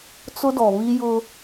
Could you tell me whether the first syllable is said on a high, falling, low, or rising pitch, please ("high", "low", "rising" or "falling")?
high